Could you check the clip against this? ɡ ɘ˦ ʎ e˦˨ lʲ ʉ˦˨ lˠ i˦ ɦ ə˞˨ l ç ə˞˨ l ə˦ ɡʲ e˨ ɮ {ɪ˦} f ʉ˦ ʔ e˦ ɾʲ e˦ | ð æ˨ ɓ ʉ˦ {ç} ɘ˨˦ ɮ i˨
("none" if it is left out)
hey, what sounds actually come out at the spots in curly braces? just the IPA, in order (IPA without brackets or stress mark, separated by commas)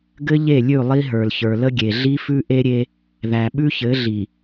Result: i˦, ç